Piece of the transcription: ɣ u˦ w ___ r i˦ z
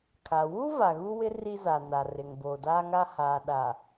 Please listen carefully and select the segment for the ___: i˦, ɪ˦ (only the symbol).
ɪ˦